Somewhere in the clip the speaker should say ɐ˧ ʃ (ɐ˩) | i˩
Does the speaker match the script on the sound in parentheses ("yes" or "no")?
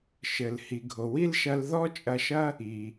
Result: no